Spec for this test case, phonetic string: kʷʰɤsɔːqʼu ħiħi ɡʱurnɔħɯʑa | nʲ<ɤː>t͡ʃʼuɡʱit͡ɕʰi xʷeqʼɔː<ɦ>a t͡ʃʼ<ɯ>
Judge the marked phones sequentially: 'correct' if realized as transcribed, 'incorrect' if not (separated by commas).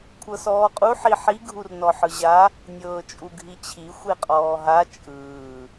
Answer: correct, correct, incorrect